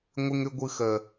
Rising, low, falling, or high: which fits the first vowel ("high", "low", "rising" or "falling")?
high